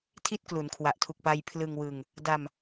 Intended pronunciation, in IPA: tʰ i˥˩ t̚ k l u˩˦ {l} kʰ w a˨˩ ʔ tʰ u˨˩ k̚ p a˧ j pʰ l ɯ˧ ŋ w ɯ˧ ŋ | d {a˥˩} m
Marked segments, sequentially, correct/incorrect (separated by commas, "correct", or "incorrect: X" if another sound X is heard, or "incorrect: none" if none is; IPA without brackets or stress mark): incorrect: n, incorrect: a˧